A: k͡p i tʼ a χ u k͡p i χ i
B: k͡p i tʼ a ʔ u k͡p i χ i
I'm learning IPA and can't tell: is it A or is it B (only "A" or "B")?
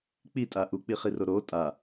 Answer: B